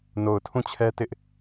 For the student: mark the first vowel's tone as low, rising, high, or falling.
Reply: low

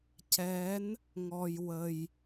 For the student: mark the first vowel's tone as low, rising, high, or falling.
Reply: rising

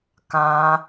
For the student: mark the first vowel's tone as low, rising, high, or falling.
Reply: high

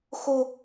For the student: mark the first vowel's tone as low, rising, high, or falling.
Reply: high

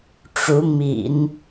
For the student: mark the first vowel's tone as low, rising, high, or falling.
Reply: rising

